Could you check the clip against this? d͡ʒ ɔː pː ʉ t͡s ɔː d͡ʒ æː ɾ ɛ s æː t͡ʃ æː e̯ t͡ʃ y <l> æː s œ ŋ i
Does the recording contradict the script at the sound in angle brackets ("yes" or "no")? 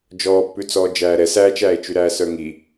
yes